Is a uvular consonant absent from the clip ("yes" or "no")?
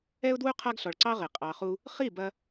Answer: no